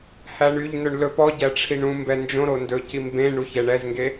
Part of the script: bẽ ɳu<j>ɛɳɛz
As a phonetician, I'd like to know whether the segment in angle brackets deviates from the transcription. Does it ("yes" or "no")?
yes